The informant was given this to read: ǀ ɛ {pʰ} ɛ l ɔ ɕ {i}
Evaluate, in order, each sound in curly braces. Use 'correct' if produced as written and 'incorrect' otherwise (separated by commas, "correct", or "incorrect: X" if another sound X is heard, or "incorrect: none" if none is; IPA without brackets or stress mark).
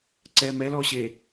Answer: incorrect: m, incorrect: e